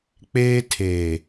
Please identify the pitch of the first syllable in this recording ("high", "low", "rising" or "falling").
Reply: high